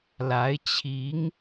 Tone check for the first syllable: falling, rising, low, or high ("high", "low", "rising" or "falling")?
rising